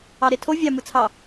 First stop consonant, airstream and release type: aspirated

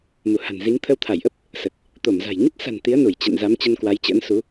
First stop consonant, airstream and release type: aspirated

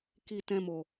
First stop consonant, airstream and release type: plain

